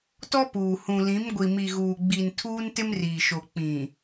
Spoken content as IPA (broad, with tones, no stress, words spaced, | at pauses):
tɔ˦puː˨hũ˨lĩ˨˦m ɡʷi˨mi˨ ɣuː˨ɡ͡bi˨n tʰuː˦ntɪ˦mriː˨ʃo˨ k͡pĩ˨